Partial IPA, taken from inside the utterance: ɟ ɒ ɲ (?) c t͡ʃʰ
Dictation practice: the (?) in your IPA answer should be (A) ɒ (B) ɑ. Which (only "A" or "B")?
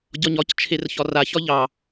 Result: A